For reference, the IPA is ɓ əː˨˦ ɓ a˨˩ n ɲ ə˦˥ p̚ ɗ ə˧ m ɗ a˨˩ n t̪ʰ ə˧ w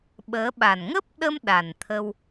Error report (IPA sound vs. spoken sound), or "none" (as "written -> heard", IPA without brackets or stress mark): ɲ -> ŋ